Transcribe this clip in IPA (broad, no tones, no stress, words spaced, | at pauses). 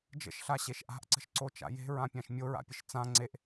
d͡ʒə̰ʃɬaɕeʃ ʔa̤ʔǀə̤ʃǀot͡ʃa̰ je̤ɹãpʲãʃ mʲoɹa̰pʲəʃ t͡sã ŋ͡ǀeʔ